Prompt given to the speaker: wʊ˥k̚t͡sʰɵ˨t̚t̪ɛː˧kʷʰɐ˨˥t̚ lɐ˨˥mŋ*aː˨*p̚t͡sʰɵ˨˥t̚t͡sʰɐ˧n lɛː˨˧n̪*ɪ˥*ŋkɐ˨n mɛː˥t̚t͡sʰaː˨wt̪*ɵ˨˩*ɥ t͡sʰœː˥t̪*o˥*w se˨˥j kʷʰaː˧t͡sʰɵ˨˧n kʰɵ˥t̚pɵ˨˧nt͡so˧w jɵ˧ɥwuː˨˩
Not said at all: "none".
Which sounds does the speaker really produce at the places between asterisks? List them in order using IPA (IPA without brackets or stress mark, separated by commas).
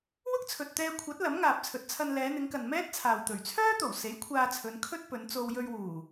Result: aː˨, ɪ˨˧, ɵ˨˩, o˨˩